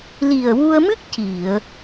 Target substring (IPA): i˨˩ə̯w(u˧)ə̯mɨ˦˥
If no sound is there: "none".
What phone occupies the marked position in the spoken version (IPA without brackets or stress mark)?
u˧